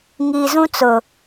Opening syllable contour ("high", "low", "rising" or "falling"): low